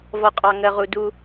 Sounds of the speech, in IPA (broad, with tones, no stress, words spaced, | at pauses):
vɔ˨qʼɑ˨ ŋɜ˨ʁu˨ du˦